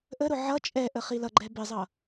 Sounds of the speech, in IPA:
ʔ ə ɾ ʊ ʕ ʌ t͡ʃʼ ɛ ʔ ə χ i l ʌ ɡ͡ǃ ɛ b ɪ zˤ ʌ

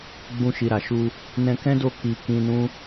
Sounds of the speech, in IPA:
ɡ͡b ũ˧ ʃ i˨ ɾ a˨ ʃ u˧ | n ɛ̃˧ k ɛ̃˦ d o˦˨ k i˧ k ĩ˧ n ũ˦

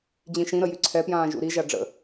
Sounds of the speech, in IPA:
d͡ʑ ĩ ʃ ĩ ɾ ə j y ǀʰ ɛ p j ãː ʒ ṵ ɾ i ʒ a ɖ͡ʐ ə̰

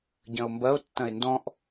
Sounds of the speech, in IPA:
ɟ ɐ̃ o̯ m b ɐ o̯ tː ɐ̃ e̯ n d ɔ̃ ʔ

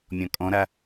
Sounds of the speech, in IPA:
mʲ ɔ̃ kʼ ɔ̃ ɾ a

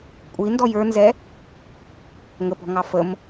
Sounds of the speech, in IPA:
kʷʼ i n d ɔ j ə˞ n z ɛ | ŋ ə p ɔ̤ ŋ ɑ f ə m

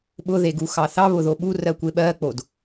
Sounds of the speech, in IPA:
ɓ ʊ ð e ɡ u x ɑ θ ɑ β ʊ ð o ɓ u r ɜ kʷ e ɓ ɜ k͡p o d

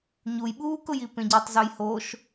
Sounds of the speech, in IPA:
ɲ u j ɓ uː k ʊ j i p ẽ ɟ i tˤ z o j h o ʃ

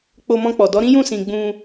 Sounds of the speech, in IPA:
k͡p o˧ m ɔ̃˧ k͡p ɔ˨ d ɔ˨˦ ɾ ĩ˦ j ũ˦˨ s ĩ˧ ɡ͡b ũ˧

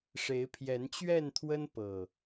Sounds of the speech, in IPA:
ʂ e˨˦ ɪ̯ pʰ j ɛ˨˦ n t͡ɕ ɥ ɛ˥˨ n t̪ʰ w ə˦ n p ɤ˨˩

